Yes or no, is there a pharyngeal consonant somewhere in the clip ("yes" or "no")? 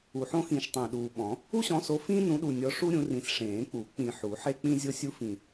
yes